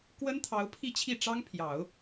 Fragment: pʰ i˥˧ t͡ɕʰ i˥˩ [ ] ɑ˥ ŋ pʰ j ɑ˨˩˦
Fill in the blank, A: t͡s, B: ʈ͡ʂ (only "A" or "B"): B